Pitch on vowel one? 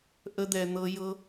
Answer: high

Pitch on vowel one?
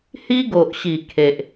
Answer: high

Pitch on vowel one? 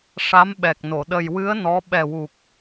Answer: rising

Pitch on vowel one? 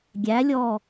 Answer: rising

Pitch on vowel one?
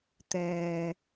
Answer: low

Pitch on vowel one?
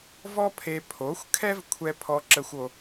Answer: high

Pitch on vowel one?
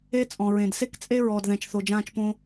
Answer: high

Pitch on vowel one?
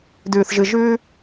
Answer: low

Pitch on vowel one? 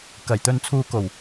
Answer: low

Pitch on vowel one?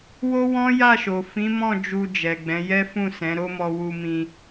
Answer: high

